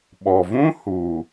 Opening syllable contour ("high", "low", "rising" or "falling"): low